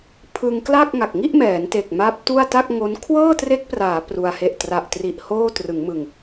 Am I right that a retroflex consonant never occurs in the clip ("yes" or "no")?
yes